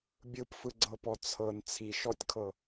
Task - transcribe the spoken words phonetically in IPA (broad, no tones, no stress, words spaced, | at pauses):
bʲɯpfɯɡ͡ǀɤpɔ t͡sʰɤn t͡sʰiʃɔtʲkʰɤ